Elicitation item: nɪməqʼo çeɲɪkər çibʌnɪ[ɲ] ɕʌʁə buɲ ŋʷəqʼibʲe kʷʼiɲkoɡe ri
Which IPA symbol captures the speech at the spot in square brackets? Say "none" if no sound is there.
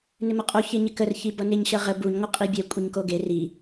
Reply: ɲ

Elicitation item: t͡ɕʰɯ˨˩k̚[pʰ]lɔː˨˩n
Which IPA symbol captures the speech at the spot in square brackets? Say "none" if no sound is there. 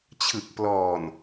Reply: p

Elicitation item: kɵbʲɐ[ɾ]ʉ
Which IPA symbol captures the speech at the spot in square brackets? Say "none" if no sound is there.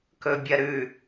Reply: ɾ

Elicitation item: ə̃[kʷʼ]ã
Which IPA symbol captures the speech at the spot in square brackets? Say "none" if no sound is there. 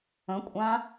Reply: kʷʼ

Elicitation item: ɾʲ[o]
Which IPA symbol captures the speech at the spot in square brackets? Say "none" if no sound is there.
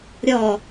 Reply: ɔ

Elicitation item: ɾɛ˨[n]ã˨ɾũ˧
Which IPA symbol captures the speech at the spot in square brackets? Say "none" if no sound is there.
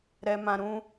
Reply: m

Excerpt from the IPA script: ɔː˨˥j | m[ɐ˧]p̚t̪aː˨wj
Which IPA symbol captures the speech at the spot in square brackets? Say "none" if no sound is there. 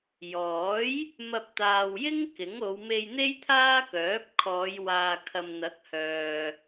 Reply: ɐ˧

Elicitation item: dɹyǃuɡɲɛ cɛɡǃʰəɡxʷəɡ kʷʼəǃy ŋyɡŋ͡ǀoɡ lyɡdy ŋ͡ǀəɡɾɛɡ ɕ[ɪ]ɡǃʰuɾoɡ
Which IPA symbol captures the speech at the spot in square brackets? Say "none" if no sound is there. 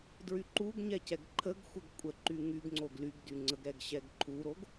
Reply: ɛ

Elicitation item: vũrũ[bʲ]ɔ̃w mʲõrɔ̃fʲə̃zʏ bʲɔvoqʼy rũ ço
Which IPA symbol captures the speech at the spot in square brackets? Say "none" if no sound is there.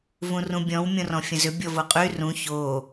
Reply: bʲ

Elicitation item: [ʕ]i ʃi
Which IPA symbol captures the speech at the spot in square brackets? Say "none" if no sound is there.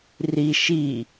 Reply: r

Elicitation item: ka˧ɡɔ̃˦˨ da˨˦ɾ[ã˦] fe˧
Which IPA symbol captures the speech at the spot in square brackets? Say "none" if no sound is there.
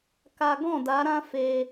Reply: ã˦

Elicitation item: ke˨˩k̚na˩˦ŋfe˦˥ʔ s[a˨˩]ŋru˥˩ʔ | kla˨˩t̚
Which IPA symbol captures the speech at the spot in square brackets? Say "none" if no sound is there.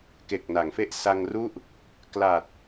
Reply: a˧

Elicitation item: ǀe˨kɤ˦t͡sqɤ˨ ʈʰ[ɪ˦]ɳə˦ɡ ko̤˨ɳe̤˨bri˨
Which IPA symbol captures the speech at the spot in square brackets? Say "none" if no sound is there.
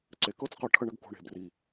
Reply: ə˦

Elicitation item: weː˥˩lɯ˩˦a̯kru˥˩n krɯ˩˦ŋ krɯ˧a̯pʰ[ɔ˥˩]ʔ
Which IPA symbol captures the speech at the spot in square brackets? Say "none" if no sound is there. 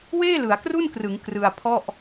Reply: ɔ˥˩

